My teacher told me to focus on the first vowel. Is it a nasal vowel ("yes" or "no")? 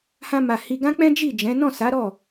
yes